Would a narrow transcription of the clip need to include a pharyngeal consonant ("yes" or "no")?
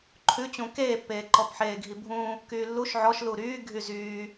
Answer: yes